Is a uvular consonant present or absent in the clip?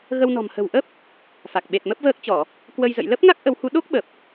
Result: absent